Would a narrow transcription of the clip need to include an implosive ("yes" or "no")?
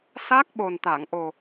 yes